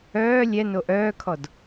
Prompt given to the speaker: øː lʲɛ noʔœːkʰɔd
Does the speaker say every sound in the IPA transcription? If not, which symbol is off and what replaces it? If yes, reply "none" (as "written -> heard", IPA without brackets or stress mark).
øː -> œː